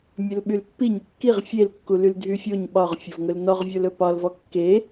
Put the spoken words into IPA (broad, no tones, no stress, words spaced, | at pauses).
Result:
mʲɵlɓylpːi ɲʏkːiʁ fʲelkːu lyldʱyfʲoɲ ɓɒʁfʲovŋɵl nɔʁvʲolɵ pɒlvɔ kːe